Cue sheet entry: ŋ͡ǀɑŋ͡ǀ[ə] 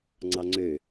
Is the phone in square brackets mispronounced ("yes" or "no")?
yes